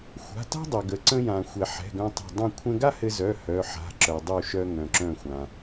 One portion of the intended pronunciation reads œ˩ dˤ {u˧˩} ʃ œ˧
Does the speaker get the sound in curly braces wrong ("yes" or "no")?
no